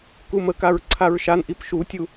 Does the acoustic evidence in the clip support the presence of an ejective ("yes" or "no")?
no